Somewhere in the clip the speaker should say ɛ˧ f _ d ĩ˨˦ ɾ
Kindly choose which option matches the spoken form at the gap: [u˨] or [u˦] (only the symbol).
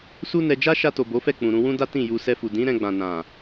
u˨